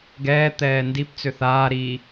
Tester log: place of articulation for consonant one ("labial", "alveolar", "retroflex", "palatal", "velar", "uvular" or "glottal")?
velar